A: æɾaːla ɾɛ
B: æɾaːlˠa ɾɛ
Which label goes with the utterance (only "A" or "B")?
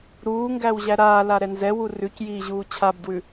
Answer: A